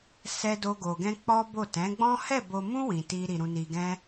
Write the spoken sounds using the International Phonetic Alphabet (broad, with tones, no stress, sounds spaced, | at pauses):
s ɛ˦ d o˦ ɡ o˧ ɡ ɛ̃˦ k͡p ɔ˦ b o˦˨ t ɛ̃˨˦ ɡ͡b ɔ̃˦ h ɛ˦˨ b o˧ m ũ˦ w ĩ˧ t i˦ ɾ i˧ ɾ ũ˧ n i˧ ɡ ɛ̃˦